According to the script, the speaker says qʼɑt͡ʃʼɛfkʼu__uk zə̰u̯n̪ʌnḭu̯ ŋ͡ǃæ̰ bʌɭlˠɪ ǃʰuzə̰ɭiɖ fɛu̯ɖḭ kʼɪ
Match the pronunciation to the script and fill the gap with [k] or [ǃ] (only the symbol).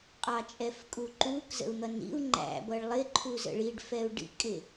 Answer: ǃ